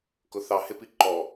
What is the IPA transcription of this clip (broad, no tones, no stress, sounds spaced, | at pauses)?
k ʊ θ ɑ h ɪ p i ǃ ɔ